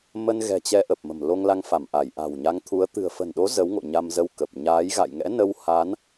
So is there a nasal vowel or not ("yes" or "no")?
no